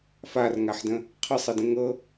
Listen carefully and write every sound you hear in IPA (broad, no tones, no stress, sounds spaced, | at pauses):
f a r ŋ a ħ d ə̃ | qʰ ə sˤ ə d ə̃ ŋ ɤ